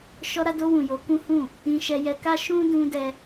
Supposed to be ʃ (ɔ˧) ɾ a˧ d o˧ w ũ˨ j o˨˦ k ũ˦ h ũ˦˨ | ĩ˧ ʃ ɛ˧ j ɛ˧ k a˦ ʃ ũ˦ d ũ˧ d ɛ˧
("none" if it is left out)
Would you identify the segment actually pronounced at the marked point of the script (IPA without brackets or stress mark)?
ɔ˧